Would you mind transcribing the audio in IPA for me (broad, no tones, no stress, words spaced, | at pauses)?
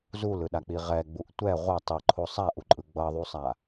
zulɯɗak͡pi ʁɛɡ͡buʔ tʷɛ ʁʷʌ tˤiǃʰo sˤaʔuǃʼɯ ɡ͡bʌðˤusˤa